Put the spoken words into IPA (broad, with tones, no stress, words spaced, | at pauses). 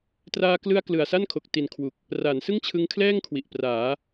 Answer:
traː˧klɯ˧a̯ klɯ˨˩a̯sa˥˩nkʰo˨˩k̚ti˨˩n kʰwu˨˩k̚ | ra˩˦nsɯ˥˩ŋt͡ɕʰɯ˧ŋkʰlɛː˥˩ŋ kʰwi˨˩ʔpraː˩˦